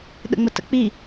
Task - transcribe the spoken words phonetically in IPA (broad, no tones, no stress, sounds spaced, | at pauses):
ɗ ə̰ ŋ͡m ə t ə̰ k͡p i